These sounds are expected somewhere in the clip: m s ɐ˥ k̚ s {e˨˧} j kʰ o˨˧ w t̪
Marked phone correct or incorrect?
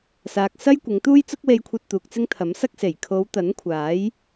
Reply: incorrect: e˨˩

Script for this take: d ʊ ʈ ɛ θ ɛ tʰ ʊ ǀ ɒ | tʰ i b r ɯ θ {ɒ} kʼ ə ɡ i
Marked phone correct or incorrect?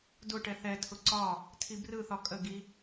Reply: correct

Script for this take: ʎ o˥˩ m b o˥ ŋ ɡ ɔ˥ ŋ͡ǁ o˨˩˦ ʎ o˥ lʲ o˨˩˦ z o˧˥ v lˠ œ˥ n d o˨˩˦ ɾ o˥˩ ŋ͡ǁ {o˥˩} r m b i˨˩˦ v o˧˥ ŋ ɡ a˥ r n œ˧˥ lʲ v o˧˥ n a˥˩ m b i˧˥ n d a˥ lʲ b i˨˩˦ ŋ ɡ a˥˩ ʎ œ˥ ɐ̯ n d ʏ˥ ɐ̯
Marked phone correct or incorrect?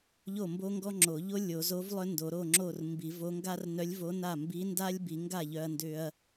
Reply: correct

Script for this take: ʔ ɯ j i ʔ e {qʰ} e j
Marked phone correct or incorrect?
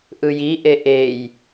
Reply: incorrect: ʔ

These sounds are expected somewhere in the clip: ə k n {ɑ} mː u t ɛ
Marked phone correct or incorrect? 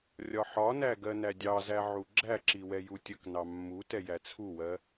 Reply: correct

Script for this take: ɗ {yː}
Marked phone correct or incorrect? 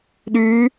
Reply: correct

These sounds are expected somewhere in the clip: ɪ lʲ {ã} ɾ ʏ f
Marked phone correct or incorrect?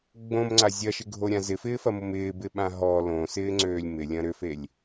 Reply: incorrect: ɐ̃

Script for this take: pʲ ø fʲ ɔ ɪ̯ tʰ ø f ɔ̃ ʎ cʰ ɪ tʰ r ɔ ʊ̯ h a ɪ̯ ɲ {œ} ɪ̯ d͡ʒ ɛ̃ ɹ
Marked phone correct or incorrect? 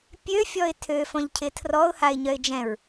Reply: correct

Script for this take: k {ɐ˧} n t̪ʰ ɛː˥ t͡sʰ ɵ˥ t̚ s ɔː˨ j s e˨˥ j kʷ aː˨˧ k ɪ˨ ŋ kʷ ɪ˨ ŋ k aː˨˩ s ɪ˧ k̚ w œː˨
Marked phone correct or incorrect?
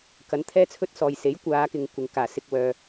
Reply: incorrect: ɐ˨˥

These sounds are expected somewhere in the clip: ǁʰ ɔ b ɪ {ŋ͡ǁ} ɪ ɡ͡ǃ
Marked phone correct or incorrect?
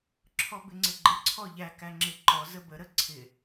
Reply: incorrect: ŋ͡ǀ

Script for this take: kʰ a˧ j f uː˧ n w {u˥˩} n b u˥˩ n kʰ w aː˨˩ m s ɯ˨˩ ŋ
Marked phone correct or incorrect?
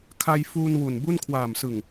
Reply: incorrect: u˨˩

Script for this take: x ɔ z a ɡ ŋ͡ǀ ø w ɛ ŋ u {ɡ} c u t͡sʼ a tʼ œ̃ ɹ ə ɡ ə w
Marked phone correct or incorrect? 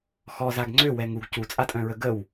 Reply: correct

